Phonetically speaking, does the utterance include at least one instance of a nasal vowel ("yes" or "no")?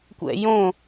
yes